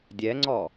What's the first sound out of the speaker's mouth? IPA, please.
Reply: dʲ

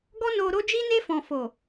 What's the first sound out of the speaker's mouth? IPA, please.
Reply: ɡ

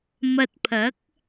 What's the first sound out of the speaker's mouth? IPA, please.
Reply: m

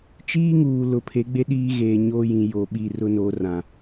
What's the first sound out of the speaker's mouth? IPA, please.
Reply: t͡ʃ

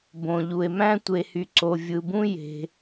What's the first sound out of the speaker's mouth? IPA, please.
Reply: b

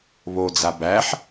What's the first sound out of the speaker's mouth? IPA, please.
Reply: β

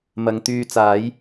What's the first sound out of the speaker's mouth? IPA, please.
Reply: m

